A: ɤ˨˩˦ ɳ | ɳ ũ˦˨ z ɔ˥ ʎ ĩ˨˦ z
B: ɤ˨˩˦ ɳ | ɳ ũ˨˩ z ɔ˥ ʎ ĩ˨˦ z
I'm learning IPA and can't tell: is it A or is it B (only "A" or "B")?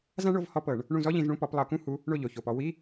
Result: A